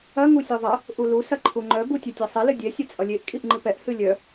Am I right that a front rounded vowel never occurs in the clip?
no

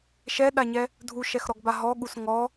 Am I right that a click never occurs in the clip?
yes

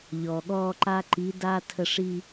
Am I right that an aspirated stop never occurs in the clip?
no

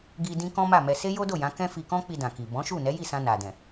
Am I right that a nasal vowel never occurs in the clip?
no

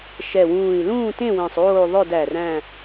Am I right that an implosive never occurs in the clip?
yes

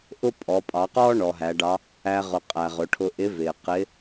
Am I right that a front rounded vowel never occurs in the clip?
yes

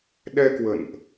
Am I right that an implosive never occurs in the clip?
no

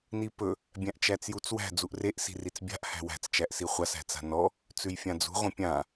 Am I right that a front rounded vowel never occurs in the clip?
yes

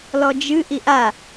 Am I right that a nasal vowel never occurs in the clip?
yes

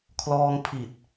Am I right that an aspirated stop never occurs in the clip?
no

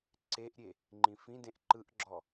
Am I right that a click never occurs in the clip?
no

